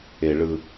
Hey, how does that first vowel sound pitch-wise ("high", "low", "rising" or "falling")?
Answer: low